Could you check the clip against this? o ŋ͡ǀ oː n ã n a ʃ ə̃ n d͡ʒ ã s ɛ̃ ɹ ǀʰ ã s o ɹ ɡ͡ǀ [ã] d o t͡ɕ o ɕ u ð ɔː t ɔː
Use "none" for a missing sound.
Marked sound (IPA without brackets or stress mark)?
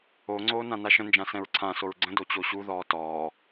ə̃